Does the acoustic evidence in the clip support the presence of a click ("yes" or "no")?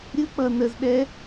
no